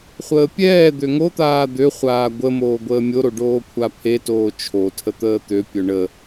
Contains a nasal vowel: no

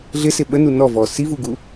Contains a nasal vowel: no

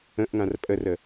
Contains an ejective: yes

